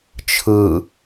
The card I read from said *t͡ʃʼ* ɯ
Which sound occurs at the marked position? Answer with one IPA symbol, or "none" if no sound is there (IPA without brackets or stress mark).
t͡ʃʰ